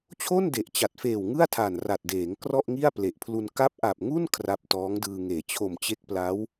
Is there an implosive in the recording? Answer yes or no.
no